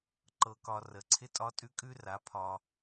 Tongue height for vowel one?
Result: mid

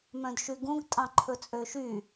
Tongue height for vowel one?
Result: mid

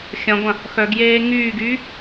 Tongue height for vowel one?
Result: low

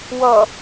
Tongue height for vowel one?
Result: mid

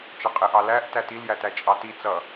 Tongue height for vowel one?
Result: mid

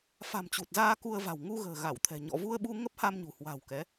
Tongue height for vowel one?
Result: low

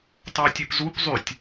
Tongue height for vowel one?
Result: low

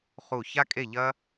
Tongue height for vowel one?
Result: high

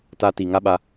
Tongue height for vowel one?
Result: low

